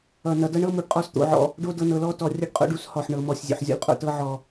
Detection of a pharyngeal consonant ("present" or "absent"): present